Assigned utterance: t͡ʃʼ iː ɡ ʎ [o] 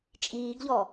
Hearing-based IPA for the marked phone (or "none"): ɔ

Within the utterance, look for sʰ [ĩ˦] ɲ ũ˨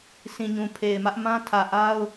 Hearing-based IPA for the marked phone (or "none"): ĩ˨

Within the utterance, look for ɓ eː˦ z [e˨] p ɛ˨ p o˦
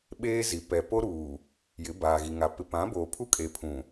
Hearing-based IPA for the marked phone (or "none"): i˨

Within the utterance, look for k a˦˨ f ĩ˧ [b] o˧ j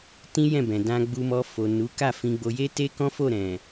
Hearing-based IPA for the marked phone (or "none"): ɡ͡b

